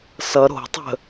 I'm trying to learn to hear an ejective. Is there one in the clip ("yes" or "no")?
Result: no